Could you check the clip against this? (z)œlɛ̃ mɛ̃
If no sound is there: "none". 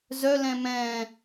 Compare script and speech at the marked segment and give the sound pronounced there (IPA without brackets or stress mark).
z